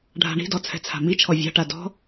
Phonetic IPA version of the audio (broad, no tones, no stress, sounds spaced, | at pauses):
ɖʱ a̤ ɳ i̤ d ɔ t͡sʰ ɛ̤ t͡sʰ a̤ m i t͡ʃʰ ɔ vʲ a̤ ʈ a d ɔ̤